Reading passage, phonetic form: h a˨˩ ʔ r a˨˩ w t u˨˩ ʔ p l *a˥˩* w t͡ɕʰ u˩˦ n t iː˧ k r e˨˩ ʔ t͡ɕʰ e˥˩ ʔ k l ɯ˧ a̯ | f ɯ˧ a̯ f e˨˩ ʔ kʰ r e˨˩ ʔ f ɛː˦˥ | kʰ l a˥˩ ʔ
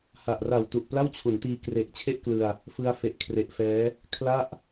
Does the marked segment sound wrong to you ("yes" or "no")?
no